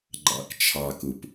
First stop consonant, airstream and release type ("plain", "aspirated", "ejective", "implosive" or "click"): click